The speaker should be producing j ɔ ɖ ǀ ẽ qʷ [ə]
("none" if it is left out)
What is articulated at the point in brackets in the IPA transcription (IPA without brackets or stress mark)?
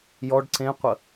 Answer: ə